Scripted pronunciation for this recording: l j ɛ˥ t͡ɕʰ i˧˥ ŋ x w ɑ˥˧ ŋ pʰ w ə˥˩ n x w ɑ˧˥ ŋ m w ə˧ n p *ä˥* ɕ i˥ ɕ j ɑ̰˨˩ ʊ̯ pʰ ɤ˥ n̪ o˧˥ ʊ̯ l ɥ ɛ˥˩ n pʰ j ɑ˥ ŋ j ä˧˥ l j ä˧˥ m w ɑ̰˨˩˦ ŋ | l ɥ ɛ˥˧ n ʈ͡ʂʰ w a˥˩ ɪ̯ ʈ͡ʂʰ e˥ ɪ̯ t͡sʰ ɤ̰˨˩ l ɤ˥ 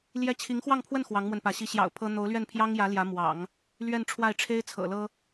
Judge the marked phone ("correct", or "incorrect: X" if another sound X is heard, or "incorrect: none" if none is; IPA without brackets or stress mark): incorrect: ä˧˥